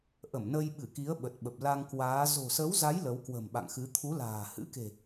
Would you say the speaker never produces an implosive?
no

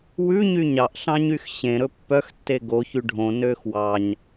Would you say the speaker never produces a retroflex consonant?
no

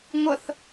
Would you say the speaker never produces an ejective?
yes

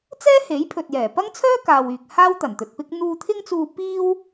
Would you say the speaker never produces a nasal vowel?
yes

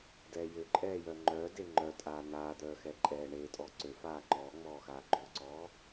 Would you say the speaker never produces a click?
no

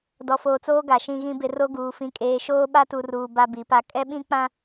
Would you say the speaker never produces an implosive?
no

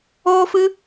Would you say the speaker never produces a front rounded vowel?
yes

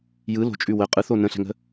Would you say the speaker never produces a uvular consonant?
no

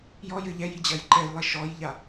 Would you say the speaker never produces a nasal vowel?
yes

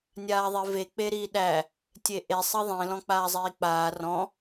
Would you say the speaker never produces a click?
yes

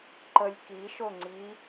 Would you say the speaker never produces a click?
no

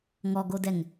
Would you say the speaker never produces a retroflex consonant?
yes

